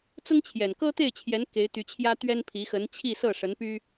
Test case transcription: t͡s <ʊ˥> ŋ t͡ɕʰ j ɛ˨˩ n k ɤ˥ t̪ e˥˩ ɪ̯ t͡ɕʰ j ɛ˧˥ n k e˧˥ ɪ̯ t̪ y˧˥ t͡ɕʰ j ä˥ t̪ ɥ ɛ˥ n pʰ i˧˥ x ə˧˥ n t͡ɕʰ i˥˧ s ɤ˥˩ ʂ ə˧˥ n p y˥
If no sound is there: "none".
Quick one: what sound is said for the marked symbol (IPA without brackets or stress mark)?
ʊ˥